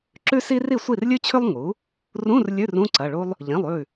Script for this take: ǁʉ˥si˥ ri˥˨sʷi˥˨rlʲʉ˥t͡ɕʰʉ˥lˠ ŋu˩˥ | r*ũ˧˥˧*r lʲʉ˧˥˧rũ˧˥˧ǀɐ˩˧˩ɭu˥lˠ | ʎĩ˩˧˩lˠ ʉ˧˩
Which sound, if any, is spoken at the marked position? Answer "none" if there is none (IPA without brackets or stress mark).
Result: ũ˧˥˧